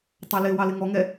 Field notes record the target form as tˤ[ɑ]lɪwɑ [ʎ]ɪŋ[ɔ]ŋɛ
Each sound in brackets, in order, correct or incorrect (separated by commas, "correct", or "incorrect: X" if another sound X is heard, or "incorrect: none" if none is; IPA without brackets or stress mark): correct, incorrect: l, correct